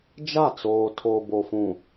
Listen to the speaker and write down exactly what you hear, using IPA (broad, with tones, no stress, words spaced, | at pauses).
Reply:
d͡ʒa˦˨ t͡soː˨ tʰoː˨bo˨fũ˨